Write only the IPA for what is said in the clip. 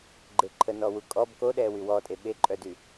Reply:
ɡ͡ǃ e ǃʰ ə n ɔ w u kʼ ɔ b k o ɗ ɛ w y w ɔ tʼ e ɓ e ǃʼ œ d y

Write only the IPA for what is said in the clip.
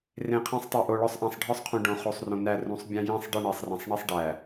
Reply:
r ẽ˨ qʰ æ̃˦ sˤ tˤ æ˨ ʔ o˨ ɭ ɒ˦ sˤ ʔ æ̃˨ sˤ ɖʱ ɒ˦ sˤ qʰ ũ˨ ɖ õ˨ χ o˨ sˤ r õ˨ n æ˦˨ r ũ˨˦ sˤ bʲ æ̃˦ j ĩ˦˨ sˤ ɖ i˦˨ ɳ e˨ sˤ r æ̃˨ sˤ ɳ i˦ sˤ ɖ æ˨

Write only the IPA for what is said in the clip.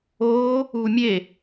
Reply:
oː | uː mʲ e

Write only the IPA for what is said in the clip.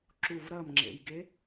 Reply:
ǁ u v ɾ ɐ m ŋ͡ǁ ḛ j ɡ e

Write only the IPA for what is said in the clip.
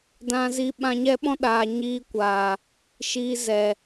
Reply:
d ã˧ z i˧ ɓ ã˧ ɲ ɛ˦ ɓ ɔ̃˦ ɗ aː˨ ɲ iː˧ kʷ aː˨ | ʃ iː˧ z ɛ˨

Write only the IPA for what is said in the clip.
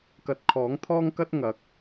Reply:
k ɐ˨ t̚ kʰ ɔː˨˥ ŋ t̪ʰ ɔː˥ ŋ k ɐ˥ t̚ ŋ ɐ˨˥ k̚

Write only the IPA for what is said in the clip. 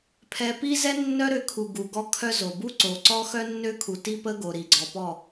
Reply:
pʰ ɛ˧ p i˦ z ɛ˦ nː œ˦ ɾ ø˧ kʰ u˨ ɡ u˨ ɡ ɔ˦ kʰ œ˦ z o˨ b u˦ ǀ o˨ ǀ ɔ˦ x œ˦ nː ø˦ kʰ u˨ t i˦ p ə˦ ɡ o˨ ɾ i˨ ɡ͡ǀ ɔ˨ p ɔ˦˨

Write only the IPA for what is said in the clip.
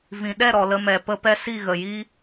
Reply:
v ĩ˨ ɗ ɛ˦˨ ɾ ɔ˨ l ə˧ m ɛ˨ p ə˧ p ɛ˧ s i˦˨ ɣ ə˨ j i˦

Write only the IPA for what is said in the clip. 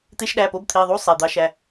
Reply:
t̪ e˧˥˧ ʃ ɗ æ˩˧˩ p o˧˥˧ b t̪ʰ i˩˧˩ ðˤ u˧˥˧ sˤ e˩˧˩ d̪ ɑ˧˥ ʃ æ˩˧˩

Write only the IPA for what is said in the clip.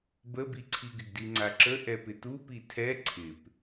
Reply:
b ə b i ǀʰ i ɡ ɪ ɡ d i ŋ͡ǀ a ǁ ə ʔ ɛ p ɪ t u p i tʰ ɛ ǀʰ ɪ p

